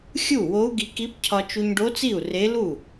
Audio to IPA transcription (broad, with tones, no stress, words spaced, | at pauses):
xʲu˥˩wo˧˥u̯ɡi˧ki˧˥p cʰɒ˧t͡ʃu˧ɲɖo˧˥t͡si˥˩u̯ re˧˥ lu˥˩